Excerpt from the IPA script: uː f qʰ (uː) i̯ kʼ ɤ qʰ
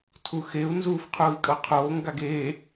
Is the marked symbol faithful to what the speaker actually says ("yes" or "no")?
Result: yes